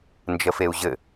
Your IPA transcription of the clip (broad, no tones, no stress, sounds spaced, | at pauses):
n d͡ʒ ə f e u̯ ʑ ɘ